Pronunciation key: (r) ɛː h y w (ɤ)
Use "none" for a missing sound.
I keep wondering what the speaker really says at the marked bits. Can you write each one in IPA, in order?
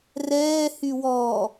r, ɔ

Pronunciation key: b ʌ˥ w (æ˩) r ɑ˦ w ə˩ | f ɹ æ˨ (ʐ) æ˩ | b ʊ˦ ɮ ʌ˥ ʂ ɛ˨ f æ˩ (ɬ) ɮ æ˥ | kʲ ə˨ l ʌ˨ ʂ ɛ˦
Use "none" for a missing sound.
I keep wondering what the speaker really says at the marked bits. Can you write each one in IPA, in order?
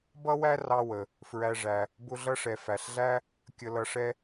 æ˥, ʐ, ɬ

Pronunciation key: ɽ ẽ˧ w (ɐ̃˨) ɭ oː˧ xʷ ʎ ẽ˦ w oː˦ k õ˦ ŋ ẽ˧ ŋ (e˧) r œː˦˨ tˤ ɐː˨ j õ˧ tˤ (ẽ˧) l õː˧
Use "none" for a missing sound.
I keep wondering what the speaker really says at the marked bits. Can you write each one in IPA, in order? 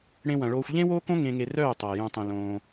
ɐ̃˨, e˧, ẽ˧

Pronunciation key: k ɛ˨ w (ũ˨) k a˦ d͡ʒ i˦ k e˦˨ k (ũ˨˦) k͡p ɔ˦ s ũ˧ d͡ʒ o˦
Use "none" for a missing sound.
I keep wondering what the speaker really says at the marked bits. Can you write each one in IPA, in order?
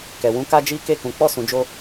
ũ˧, ũ˨˦

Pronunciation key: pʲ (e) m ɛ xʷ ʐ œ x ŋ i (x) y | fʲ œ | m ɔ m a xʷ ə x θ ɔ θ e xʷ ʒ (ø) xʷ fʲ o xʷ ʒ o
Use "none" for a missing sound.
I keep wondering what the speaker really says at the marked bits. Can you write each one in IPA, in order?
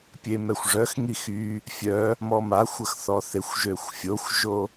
e, x, ø

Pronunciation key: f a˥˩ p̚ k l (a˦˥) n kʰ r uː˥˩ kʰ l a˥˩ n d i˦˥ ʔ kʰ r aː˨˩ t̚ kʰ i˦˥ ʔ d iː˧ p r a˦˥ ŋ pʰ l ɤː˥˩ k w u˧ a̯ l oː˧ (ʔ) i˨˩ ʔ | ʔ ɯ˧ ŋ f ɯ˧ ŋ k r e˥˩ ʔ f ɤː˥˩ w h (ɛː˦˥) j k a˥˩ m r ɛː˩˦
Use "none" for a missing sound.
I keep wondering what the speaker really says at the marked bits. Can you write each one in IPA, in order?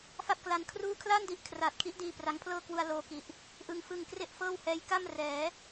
a˦˥, k, ɛː˦˥

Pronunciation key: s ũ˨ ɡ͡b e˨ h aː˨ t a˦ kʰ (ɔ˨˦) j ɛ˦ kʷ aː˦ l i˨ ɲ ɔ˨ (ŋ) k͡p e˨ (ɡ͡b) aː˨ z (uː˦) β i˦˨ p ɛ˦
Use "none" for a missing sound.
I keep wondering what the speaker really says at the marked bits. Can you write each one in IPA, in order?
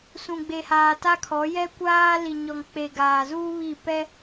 ɔ˨˦, ŋ, ɡ, uː˦

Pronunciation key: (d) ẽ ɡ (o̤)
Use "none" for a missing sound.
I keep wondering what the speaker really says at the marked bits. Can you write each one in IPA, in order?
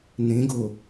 n, o

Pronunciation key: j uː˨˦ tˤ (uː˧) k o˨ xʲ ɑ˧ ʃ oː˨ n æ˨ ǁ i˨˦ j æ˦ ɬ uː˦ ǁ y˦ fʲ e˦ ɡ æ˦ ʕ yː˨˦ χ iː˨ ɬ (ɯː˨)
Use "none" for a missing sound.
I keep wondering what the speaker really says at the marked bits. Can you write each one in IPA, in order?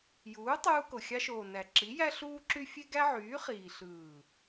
uː˧, ɯː˨

